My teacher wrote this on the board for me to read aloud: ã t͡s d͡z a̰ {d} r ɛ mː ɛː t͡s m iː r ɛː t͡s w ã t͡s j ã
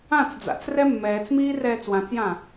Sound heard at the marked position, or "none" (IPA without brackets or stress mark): t͡s